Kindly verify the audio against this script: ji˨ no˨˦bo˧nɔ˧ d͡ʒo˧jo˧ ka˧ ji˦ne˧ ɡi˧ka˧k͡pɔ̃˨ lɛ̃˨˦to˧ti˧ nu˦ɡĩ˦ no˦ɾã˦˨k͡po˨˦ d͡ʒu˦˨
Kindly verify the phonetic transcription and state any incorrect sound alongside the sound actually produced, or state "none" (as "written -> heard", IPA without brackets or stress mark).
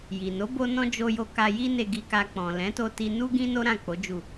ɔ˧ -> ɔ̃˧